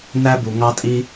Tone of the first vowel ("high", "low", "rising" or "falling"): high